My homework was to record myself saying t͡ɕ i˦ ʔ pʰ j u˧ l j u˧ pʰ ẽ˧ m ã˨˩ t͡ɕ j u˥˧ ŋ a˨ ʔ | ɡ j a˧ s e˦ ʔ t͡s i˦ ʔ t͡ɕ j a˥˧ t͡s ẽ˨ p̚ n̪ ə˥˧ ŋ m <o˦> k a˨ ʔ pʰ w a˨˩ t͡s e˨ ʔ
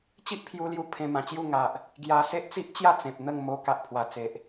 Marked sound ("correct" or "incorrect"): incorrect